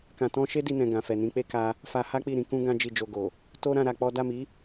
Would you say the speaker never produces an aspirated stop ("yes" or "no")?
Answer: yes